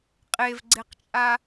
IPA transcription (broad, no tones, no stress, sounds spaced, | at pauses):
qʼ e v ɡ͡ǀ e q t͡ʃʼ a